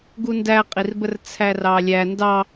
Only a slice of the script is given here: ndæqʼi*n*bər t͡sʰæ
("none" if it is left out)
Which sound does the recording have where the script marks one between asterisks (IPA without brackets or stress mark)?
r